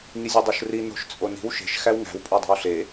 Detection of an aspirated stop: absent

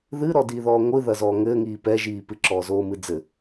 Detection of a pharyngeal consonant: absent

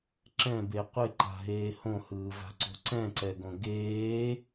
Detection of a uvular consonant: present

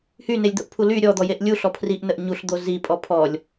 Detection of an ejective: present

